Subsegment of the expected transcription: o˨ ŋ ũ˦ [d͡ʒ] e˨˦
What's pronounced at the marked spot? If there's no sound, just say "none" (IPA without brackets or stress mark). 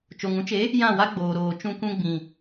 t͡ʃ